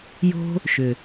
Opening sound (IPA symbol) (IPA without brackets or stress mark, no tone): j